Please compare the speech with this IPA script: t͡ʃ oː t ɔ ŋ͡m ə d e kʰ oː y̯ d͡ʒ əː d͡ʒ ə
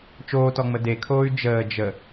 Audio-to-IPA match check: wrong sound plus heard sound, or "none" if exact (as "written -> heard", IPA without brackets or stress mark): none